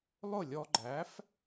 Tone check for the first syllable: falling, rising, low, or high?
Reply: falling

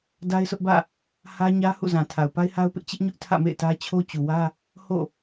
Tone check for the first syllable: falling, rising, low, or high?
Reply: high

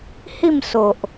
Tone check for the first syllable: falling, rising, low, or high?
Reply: falling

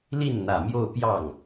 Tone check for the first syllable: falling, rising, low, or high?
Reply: falling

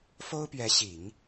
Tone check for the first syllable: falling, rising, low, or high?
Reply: high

